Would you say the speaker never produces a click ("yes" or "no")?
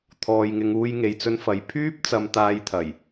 yes